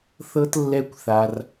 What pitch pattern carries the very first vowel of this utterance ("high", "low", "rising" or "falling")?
high